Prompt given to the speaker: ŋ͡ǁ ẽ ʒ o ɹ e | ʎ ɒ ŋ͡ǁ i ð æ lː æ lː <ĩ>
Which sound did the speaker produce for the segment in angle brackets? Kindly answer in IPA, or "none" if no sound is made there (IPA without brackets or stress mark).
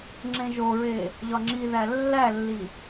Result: i